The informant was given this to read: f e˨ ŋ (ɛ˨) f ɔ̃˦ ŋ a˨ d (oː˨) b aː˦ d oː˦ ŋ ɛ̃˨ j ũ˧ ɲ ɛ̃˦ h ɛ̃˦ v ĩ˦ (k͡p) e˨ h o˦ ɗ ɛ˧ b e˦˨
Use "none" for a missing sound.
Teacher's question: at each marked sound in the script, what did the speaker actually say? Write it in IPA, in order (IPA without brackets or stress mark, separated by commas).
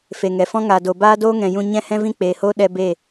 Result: ɛ˨, o˨, k͡p